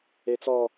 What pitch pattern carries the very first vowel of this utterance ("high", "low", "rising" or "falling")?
high